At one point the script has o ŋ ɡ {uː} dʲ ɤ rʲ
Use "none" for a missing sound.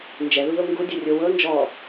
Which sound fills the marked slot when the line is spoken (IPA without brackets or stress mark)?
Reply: u